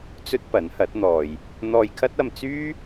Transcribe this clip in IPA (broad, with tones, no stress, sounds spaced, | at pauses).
t͡s ɵ˥ t̚ p ɐ˨˥ n h ɐ˨˥ t̚ n̪ ɔː˨ j | n̪ ɔː˧ j kʰ ɐ˥ t̚ ɐ˧ m t͡s yː˥